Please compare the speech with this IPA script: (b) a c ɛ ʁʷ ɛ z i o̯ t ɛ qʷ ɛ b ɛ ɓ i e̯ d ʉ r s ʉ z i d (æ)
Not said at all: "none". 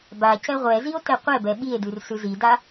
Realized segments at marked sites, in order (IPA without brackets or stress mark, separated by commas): b, a